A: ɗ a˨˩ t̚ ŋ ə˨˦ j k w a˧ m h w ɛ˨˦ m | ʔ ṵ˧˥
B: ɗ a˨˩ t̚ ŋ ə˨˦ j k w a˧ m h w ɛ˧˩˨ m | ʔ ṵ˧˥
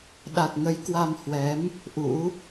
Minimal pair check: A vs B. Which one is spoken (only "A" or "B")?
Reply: A